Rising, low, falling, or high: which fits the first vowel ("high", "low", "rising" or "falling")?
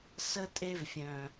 high